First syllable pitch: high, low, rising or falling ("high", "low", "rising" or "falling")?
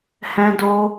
high